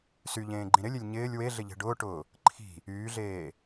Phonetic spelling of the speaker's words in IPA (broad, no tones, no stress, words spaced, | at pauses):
syʎẽːɡ͡ǃĩ ɾɪlʲelʲ ɲɪːlʲ weɮɪʎe̤ ɖʊːʈʊː | ǃʰi̤ | yːɮeː